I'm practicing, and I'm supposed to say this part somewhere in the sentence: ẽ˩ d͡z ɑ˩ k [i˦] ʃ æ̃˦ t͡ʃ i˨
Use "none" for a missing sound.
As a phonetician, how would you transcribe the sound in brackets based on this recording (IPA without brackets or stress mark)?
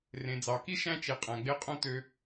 i˥